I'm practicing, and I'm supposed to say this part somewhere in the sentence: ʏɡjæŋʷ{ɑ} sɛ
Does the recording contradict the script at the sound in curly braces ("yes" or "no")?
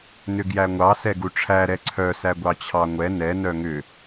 no